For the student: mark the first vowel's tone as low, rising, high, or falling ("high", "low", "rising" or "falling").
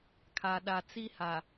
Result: low